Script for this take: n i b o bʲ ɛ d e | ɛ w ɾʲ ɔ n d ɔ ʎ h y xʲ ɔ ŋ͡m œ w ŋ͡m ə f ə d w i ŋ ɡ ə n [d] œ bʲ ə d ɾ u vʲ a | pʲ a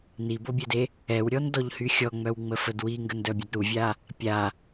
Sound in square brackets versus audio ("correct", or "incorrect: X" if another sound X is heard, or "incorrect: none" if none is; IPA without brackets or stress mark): correct